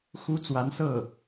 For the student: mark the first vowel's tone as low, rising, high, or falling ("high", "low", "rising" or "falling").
high